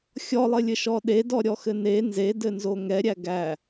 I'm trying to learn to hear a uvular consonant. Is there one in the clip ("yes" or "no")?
no